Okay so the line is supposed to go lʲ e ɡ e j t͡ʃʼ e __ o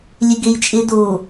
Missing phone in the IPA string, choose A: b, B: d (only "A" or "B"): B